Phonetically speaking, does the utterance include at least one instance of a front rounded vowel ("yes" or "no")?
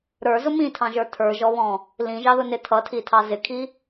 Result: no